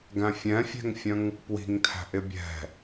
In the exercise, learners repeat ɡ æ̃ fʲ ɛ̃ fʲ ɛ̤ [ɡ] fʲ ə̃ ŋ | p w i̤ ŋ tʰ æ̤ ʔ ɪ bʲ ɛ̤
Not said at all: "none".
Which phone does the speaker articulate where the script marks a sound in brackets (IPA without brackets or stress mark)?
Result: ŋ